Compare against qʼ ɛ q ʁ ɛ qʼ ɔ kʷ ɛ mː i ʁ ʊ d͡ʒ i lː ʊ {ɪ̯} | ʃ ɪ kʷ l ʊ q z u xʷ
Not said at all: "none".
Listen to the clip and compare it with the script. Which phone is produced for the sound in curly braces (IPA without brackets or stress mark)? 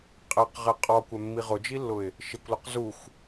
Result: ɪ̯